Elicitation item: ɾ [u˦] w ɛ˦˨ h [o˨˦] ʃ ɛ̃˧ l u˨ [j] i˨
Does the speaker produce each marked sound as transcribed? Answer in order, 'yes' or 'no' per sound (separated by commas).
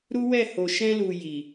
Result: yes, no, yes